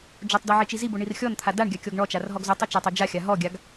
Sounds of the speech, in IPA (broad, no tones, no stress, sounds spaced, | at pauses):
d͡ʒ o tˤ d ɔ ʕ i t͡ʃ i z i b o ɳ i r xʲ ɔ n t̪ʰ a d a ɳ ɡʲ a kʲ ɔ ɡ ɳ ɔ t͡ʃ a r ɦ ɔ ɡ z o tˤ y t͡ʃ a tˤ o d͡ʒ a xʲ a ɦ ɔ ɡʲ a ɡ